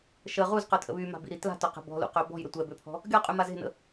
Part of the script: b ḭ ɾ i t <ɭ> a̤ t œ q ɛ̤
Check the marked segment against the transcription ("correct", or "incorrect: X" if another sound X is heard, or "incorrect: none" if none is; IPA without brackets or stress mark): incorrect: l